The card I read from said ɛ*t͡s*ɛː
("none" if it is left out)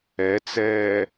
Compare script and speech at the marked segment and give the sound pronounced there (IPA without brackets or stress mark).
t͡s